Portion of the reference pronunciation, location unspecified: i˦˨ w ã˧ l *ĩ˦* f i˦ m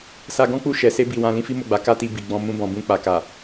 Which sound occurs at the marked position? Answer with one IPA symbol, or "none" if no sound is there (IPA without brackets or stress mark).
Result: ĩ˦